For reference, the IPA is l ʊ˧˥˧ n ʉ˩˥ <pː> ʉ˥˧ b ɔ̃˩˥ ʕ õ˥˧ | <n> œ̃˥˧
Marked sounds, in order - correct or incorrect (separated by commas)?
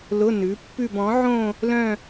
correct, incorrect